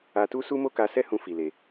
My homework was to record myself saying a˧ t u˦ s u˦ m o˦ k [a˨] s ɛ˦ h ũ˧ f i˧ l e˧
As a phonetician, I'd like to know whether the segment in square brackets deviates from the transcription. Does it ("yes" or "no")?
yes